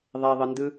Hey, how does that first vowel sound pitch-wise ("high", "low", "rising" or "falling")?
low